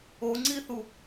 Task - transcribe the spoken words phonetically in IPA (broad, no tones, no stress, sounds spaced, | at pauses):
o ŋ͡ǀ i θ u